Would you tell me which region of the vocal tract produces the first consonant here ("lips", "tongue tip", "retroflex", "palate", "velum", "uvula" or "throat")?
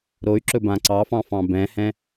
tongue tip